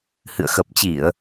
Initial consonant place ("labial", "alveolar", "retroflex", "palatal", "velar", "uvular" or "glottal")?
glottal